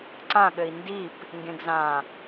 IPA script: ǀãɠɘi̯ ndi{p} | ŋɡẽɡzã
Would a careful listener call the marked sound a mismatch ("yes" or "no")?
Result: no